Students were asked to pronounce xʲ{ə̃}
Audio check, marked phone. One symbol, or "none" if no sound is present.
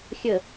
ə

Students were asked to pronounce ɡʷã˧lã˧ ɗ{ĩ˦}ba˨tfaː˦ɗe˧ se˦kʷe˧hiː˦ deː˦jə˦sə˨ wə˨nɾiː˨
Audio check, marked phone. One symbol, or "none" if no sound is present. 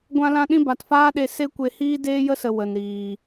ĩ˦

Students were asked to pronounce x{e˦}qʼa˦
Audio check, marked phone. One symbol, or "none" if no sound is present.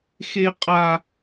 e˦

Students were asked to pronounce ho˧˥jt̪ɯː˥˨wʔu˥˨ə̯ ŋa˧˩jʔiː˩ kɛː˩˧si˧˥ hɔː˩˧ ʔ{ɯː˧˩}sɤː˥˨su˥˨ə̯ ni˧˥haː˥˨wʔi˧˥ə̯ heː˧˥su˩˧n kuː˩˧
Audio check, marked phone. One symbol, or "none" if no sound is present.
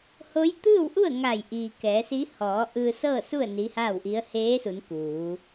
ɯː˧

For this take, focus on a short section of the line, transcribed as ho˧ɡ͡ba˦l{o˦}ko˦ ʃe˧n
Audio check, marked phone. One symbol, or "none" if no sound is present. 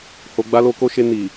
o˦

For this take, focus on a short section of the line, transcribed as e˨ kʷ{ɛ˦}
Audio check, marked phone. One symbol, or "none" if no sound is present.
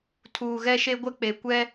ɛ˦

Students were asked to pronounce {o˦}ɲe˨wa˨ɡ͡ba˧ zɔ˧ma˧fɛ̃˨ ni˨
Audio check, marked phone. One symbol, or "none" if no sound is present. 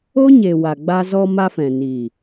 o˦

